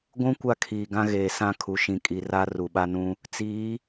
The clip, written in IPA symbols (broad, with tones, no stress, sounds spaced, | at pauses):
ɡʷ ũ˦ kʷ a˦ kʰ iː˨ ɡ ã˦ ɣ eː˨ s ã˦ kʰ u˨ ʃ ĩ˨ kʼ i˨ r a˦ r u˨ ɓ a˦ n ũ˦ | t͡s iː˨˦